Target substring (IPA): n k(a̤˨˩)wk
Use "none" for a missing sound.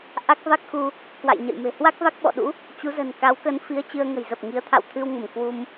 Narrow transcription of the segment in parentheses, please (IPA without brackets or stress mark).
a˨˦